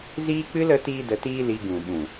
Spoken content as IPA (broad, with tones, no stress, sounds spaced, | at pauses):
z iː˦ k͡p ɨ˦ l ə˨˦ t iː˦ d ə˧ t iː˦ l i˧ ɡ ũ˨ ɓ ũ˨